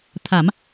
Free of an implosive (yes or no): yes